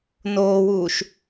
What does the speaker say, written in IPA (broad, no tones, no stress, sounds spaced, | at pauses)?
n oː w uː ʃ